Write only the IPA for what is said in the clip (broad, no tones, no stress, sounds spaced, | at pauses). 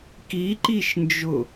k i ǃ i ʃ n d͡ʒ ʊ